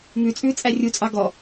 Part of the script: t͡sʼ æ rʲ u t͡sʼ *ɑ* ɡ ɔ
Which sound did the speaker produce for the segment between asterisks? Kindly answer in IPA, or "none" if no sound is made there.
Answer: ɑ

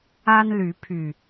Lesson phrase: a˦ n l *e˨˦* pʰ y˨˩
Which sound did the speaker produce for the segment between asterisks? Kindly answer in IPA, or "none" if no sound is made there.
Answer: y˨˦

